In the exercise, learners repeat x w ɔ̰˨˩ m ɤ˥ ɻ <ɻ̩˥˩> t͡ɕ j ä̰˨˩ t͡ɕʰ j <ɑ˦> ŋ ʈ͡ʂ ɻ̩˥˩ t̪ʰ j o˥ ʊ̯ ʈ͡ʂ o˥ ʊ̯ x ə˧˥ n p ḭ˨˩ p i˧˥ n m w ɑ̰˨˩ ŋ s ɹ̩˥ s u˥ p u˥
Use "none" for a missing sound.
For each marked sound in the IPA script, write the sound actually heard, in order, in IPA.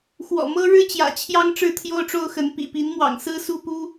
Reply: ɻ̩˥, ɑ˥

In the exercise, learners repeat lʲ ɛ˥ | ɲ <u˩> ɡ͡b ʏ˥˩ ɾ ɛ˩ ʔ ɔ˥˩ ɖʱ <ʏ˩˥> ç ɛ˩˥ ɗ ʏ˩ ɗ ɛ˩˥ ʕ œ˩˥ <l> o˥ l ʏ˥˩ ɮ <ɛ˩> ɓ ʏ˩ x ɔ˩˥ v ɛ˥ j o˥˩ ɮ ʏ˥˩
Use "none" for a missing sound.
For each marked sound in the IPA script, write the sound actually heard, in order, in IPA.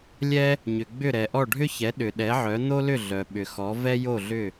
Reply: ʏ˩, ʏ˥, n̪, œ˩

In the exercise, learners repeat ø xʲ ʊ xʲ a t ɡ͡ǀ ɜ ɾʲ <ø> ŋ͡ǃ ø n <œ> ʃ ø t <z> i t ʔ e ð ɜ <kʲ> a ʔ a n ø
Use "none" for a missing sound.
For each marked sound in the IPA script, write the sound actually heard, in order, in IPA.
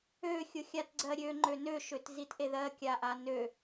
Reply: ø, ø, z, kʲ

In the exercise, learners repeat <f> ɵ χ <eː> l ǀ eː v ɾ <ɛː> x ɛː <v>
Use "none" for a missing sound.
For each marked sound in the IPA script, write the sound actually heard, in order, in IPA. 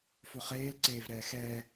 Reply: f, eː, ɛː, none

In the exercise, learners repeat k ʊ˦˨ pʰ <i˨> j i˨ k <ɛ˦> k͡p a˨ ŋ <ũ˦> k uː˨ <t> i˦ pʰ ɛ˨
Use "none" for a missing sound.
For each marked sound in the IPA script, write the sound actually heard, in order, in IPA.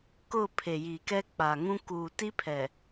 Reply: e˨, ɛ˦, ũ˦, t

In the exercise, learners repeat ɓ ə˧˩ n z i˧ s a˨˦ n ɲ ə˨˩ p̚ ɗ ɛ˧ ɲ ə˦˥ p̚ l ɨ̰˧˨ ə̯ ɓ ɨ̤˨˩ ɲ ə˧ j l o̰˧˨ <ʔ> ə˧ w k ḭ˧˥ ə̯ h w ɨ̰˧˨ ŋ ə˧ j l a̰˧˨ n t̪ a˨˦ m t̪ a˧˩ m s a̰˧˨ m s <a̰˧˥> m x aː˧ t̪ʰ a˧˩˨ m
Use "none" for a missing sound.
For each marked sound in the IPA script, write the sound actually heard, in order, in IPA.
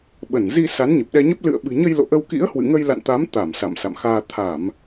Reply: ʔ, a̰˧˨

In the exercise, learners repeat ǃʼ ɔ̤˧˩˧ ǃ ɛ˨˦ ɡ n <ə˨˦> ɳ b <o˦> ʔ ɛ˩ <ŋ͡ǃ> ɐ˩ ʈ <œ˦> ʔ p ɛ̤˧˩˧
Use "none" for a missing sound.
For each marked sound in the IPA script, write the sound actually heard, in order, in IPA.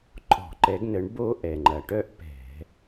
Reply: ə˨˦, o˦, ŋ͡ǃ, œ˦

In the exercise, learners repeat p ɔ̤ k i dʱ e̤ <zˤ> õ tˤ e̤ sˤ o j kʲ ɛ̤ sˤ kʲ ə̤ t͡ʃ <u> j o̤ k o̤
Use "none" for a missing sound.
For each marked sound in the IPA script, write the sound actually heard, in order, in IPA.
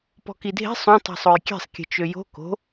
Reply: sˤ, ø

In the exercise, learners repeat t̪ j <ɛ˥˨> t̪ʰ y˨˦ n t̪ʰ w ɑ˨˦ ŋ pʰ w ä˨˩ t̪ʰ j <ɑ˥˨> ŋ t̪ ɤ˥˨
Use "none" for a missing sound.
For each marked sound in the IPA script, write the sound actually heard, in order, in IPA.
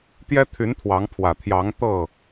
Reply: ɛ˦, ɑ˨˦

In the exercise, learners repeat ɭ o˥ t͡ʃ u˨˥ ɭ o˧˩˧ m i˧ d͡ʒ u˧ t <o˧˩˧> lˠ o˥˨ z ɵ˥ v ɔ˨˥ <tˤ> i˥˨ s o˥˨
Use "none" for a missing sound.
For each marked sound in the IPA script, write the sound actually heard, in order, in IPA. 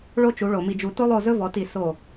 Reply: o˥, t

